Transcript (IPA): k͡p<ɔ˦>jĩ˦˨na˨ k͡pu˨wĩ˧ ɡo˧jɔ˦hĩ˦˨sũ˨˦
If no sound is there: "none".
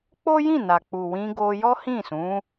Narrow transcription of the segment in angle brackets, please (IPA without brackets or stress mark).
o˦